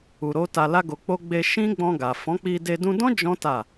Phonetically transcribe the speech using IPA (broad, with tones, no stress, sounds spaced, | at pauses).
u˨ ɾ o˨˦ t a˧ l a˦ ɡ o˧ k͡p o˦ ɡ͡b e˧ ʃ ĩ˦ ɡ͡b ɔ̃˧ ɡ a˨ f ɔ̃˨˦ k͡p i˧ d e˧ d ũ˧ d ɔ̃˦ d͡ʒ ɔ̃˦ t a˦˨